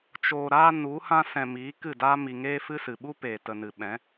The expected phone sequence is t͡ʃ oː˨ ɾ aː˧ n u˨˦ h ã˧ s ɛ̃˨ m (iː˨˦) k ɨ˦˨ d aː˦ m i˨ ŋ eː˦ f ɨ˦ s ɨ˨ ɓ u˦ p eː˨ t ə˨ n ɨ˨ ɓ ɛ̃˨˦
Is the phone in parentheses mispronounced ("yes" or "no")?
no